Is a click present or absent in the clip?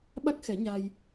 absent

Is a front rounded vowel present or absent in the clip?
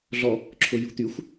present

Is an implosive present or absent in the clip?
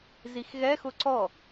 absent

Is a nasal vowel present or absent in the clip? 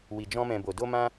present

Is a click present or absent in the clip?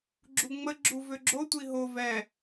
present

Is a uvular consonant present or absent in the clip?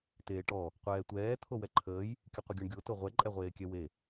present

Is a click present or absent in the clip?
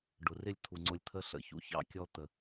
present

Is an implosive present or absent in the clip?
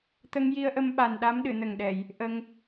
present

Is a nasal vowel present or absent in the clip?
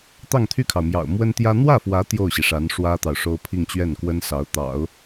absent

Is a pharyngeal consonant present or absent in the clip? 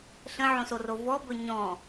present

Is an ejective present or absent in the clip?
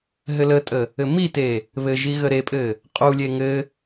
present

